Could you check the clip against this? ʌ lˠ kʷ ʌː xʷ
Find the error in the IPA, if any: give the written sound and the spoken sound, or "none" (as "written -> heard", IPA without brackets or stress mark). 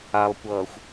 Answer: ʌ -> a